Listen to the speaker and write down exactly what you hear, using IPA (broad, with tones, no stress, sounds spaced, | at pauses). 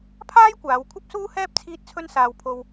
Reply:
pʰ aː˥ j kʷ aː˨˧ w kʷʰ ɐ˥ p̚ s uː˥ h ɛː˥ p̚ t͡sʰ iː˥ t̚ t͡sʰ ɵ˥ n s aː˧ w pʰ o˧ w